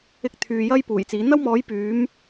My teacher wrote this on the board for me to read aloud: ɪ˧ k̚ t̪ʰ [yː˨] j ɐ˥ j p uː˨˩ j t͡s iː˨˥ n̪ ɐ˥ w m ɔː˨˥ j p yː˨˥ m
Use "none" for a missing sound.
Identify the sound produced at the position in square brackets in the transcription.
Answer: yː˨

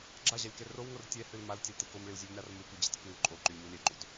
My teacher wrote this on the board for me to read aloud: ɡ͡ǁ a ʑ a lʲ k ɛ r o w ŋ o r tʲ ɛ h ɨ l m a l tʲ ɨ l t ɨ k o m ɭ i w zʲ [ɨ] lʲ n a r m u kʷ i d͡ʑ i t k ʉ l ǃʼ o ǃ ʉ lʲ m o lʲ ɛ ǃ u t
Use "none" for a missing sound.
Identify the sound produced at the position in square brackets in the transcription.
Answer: ʉ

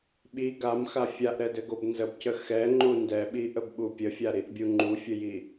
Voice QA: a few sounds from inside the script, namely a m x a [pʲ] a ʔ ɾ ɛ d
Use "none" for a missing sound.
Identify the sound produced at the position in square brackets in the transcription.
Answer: fʲ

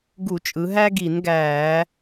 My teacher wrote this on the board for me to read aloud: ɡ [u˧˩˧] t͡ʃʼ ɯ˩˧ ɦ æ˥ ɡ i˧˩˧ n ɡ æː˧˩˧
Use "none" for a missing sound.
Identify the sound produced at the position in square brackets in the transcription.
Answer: u˧˩˧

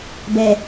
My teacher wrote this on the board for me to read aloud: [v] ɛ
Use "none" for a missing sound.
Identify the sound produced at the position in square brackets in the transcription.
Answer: b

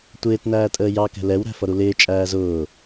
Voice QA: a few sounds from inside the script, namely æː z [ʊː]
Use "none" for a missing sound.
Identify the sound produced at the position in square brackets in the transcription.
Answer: ʊː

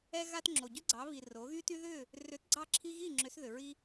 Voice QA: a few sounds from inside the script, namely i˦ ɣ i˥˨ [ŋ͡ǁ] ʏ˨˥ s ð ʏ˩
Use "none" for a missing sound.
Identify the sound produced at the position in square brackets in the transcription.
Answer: ŋ͡ǁ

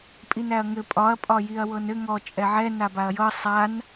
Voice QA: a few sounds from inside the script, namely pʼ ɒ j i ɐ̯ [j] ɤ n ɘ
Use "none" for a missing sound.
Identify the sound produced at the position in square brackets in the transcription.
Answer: w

